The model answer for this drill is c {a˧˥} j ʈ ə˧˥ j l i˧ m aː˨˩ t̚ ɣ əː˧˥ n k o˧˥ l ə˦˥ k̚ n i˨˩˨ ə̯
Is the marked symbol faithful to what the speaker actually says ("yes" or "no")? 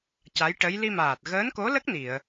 yes